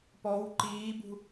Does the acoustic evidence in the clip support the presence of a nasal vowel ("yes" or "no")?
no